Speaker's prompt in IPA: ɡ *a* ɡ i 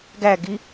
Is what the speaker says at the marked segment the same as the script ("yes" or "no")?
no